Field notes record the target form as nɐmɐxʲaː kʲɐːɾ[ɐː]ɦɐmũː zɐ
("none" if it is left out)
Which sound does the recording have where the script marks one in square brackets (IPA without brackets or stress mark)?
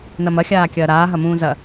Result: aː